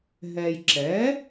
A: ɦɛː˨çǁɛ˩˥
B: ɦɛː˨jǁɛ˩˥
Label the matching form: B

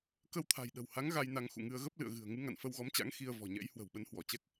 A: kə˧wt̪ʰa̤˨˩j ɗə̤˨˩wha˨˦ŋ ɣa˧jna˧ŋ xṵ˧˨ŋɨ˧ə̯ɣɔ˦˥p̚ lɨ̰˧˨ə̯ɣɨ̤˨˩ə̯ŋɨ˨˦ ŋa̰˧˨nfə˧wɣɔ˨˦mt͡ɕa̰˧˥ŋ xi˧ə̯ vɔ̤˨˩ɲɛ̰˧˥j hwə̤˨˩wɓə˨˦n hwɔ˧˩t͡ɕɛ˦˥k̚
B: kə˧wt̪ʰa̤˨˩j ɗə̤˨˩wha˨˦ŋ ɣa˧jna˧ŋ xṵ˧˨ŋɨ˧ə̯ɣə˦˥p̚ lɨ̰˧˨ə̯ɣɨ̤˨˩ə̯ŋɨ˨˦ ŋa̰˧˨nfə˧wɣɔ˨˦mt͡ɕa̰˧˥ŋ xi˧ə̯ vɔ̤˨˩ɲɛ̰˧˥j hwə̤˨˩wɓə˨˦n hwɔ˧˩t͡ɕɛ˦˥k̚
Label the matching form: B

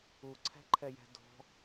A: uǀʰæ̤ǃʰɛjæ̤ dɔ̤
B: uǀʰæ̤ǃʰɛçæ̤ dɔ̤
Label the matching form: A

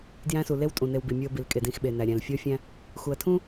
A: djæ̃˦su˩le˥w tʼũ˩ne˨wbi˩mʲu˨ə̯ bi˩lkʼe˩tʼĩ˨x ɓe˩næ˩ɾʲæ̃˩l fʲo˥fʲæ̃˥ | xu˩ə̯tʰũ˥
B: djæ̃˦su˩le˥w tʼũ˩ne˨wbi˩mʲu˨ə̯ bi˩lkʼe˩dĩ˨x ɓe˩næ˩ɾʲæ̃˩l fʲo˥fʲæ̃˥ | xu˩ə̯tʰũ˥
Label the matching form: B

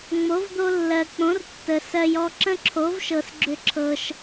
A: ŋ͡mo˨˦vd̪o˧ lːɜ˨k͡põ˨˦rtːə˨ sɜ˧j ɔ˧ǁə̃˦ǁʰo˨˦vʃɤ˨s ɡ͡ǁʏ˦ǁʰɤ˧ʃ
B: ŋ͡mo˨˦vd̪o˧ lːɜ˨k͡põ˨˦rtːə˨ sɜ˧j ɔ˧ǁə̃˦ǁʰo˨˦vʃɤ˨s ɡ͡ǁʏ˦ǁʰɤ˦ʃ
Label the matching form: A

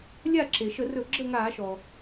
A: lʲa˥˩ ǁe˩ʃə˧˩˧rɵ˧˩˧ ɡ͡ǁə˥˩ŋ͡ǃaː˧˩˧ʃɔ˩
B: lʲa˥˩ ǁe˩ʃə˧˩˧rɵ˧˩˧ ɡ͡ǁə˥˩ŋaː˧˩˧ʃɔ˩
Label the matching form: B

